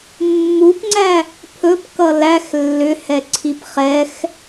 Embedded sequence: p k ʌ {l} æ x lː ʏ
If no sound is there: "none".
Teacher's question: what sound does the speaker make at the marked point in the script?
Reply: l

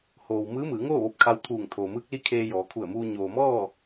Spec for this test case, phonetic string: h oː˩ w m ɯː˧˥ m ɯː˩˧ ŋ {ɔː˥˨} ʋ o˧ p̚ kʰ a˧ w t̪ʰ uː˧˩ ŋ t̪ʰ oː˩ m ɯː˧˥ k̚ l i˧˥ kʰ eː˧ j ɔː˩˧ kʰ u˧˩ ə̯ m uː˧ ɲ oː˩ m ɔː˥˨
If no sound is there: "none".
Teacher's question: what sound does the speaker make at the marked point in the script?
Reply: oː˥˨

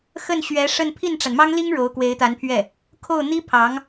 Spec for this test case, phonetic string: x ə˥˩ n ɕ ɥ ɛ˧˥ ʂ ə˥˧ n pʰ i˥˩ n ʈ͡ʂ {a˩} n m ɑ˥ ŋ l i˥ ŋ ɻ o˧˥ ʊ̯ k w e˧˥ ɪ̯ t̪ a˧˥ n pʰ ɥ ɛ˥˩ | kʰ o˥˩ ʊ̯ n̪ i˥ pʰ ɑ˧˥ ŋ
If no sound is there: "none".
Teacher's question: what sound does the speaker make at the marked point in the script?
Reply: a˩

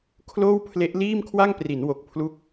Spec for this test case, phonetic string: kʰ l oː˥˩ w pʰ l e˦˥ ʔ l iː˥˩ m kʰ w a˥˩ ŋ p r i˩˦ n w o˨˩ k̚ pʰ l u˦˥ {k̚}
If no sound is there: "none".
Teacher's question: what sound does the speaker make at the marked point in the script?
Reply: k̚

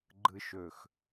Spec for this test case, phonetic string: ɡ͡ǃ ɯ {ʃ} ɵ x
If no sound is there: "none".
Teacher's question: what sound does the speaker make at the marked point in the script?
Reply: ʃ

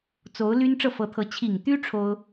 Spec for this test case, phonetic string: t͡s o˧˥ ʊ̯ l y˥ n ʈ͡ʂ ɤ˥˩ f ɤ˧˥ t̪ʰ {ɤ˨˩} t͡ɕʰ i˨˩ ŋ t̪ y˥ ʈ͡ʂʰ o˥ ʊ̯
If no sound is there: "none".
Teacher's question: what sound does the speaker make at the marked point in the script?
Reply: ɤ˧˥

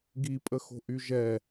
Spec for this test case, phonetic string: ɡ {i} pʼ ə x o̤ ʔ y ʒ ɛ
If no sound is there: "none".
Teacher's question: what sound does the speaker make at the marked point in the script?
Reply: i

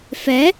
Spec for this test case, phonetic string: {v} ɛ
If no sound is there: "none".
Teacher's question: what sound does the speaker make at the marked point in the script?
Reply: f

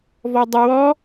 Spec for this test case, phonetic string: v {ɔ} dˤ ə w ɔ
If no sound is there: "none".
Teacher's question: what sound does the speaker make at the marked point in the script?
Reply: ɔ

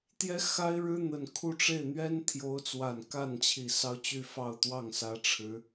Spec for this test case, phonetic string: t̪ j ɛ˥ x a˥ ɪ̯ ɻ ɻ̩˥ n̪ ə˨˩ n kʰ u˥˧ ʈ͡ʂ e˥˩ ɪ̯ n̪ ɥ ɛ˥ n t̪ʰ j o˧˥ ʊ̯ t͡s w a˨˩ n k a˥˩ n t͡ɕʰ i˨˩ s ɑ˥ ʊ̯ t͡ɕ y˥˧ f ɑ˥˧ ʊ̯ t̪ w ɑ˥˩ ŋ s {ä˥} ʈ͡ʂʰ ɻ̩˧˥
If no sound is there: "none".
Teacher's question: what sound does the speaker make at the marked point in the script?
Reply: ä˧˥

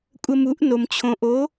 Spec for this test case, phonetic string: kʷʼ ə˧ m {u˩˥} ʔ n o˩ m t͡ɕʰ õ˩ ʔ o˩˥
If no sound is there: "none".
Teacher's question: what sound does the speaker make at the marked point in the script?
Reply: u˩˥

